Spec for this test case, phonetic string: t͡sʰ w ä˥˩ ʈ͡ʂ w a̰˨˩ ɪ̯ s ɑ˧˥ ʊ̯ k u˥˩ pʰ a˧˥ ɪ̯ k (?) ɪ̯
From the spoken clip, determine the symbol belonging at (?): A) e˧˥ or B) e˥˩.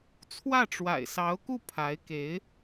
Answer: A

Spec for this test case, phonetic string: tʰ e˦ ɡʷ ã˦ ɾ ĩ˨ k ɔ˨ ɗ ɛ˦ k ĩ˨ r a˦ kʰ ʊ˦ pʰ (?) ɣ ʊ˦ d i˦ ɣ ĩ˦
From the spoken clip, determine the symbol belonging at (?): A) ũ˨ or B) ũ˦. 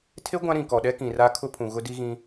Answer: A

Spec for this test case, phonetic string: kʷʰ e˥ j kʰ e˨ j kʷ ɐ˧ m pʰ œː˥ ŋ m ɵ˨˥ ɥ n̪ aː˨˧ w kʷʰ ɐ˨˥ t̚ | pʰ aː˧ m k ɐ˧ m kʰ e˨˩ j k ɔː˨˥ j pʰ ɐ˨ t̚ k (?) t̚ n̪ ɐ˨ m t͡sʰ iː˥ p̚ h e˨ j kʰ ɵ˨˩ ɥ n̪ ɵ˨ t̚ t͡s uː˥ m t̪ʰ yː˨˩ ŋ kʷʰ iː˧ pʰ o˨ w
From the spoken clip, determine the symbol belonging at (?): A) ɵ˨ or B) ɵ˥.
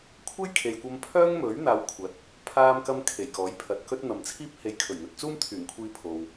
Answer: B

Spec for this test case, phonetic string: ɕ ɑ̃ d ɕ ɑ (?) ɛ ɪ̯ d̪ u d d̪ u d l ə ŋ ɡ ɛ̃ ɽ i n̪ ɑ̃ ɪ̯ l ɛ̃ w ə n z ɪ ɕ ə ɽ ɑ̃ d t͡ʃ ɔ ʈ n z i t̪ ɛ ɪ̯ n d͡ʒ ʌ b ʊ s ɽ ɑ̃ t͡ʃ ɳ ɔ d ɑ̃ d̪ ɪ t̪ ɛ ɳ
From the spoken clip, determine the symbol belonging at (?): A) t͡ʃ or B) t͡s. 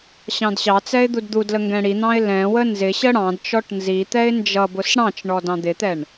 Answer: B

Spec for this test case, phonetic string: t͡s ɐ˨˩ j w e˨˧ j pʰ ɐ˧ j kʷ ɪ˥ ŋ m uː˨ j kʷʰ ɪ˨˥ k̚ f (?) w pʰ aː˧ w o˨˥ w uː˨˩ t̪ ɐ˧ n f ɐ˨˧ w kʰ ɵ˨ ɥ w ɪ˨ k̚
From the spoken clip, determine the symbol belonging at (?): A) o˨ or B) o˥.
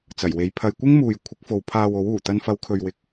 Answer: A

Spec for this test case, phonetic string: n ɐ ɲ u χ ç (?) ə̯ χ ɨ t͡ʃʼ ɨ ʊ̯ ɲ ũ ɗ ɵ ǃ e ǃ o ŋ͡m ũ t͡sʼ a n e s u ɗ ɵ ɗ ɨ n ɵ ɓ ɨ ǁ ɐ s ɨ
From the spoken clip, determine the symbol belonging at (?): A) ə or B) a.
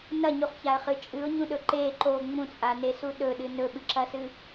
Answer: B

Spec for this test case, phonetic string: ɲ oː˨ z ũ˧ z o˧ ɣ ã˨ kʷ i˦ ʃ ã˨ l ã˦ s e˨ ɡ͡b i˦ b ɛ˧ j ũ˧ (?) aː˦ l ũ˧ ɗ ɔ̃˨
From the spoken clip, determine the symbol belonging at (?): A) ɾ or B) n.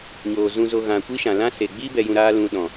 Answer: A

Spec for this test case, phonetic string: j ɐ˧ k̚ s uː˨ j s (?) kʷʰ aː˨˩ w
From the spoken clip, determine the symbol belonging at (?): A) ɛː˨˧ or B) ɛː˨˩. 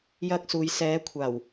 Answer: A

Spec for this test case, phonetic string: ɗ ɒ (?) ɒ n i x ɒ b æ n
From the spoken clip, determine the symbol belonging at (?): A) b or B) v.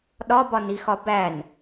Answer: A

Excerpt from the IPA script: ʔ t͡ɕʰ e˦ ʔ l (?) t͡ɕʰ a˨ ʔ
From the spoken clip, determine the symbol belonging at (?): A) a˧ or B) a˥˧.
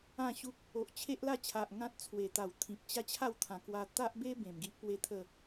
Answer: B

